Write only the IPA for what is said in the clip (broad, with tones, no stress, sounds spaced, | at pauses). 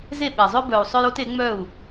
z e˦˨ ɓ ɛ˨ zˤ œ˦ b œ˨ u̯ sˤ œ˦ j o˦ t e˨˦ ŋ͡m œ˦˨ u̯